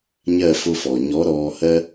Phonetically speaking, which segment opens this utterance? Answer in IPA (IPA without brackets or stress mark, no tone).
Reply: ɲ